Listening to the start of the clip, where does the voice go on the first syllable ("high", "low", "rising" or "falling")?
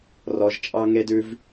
low